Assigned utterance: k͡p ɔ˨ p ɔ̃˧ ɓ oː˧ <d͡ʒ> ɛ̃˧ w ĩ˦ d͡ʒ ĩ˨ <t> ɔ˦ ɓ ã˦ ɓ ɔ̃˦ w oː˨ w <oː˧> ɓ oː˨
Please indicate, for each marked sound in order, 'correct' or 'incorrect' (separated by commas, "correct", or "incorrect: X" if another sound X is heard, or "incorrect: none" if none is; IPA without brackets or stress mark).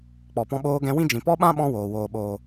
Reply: incorrect: ɡ, incorrect: p, incorrect: oː˨